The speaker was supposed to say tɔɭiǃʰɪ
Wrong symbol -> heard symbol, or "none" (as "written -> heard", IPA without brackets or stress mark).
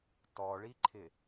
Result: none